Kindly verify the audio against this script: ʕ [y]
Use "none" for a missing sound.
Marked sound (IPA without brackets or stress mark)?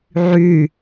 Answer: y